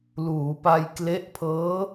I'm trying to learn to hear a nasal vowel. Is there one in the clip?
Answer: no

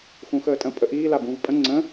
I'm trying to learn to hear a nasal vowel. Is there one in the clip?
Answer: yes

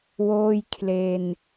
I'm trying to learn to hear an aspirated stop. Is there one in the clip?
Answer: yes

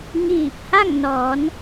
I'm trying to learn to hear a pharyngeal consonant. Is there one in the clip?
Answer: no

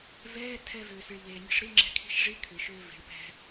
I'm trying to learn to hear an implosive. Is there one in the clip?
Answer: no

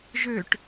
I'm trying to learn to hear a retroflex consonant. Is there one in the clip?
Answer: yes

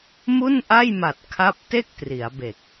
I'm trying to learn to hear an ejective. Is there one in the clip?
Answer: no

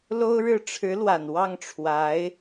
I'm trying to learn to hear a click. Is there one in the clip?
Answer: no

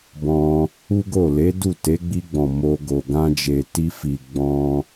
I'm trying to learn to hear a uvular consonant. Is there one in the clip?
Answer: no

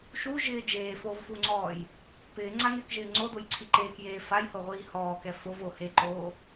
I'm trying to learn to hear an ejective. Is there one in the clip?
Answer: no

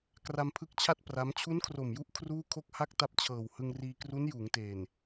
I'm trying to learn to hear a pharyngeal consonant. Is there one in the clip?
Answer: no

